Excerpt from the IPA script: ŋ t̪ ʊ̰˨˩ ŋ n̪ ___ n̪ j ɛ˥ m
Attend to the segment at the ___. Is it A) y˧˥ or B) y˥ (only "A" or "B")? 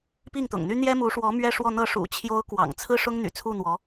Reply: B